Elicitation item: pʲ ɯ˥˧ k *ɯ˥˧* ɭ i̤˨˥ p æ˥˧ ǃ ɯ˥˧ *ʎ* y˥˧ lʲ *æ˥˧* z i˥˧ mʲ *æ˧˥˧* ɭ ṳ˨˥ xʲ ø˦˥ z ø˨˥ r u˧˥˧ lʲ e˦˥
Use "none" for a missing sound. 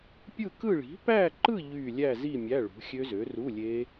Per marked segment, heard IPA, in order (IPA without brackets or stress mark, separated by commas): ɯ˥˧, ʎ, æ˥˧, æ˧˥˧